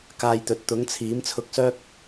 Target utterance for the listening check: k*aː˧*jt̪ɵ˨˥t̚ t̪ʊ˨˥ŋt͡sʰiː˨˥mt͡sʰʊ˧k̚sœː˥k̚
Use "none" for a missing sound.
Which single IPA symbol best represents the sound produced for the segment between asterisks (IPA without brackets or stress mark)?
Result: aː˧